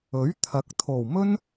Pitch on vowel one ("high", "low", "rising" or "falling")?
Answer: rising